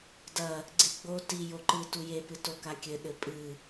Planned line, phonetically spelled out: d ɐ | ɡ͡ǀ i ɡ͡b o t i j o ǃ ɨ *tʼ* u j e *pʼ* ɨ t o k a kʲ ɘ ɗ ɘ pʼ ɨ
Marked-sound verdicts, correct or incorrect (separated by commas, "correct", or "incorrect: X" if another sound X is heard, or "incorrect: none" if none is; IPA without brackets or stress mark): incorrect: t, incorrect: p